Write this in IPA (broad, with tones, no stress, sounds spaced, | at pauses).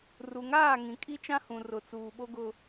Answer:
r u˨ ŋ aː˦˨ ŋ ĩ˨ kʼ i˦ t͡ʃ ã˦ h ũ˨ r ʊ˨ t͡s uː˨ ɓ o˦ ɡ ʊ˦